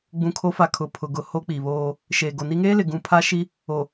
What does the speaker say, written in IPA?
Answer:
ɡ͡bũ˨kʰo˨˦fa˨ kʰʊ˨pʰʊ˨ ɡʊ˨ ho˦k͡pi˨βoː˦ | ʃeː˨ɡo˨ni˦ ŋeː˦lɪ˨ɡũ˨ pʰa˦ʃi˦ | o˨

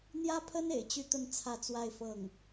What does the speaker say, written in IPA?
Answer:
n̪jä˥pʰə˥n ḛ˨˩ɪ̯t͡ɕy˥˧t̪ə˥˧n t͡sʰä˥˧t͡swa˥˧ɪ̯fɤ˥˩ŋ

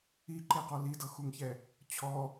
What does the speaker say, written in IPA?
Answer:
iǃeqɔ lidɤxuŋçɛ | t͡ɕʰɔ

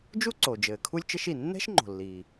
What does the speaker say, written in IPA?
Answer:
d͡ʒu˥ǀo˩ d͡ʒɘː˩kʰu˥lʲ t͡ʃɘ˥ʃi˩ nːɛ̤˥ʃŋ͡ǃo̤˩lːiː˩

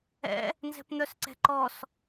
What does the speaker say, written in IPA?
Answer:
ɛ̰ | nzɛ̤pn̪œsǀɛ̤ ǃɔs

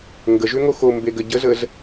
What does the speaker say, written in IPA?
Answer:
ŋɡəʒʏŋo xo mbeɡəɟəzəz

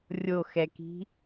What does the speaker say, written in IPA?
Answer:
rʲoxɛki̤

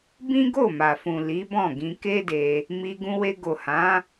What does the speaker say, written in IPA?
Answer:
bĩ˦ɡo˦˨ma˨fũ˨ li˨˦bɔ̃˦˨ɡĩ˧ ke˦de˧ | mi˧ɡũ˧we˧ ɡo˨hã˨˦

